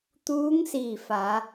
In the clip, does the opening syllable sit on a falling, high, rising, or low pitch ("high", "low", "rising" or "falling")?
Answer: rising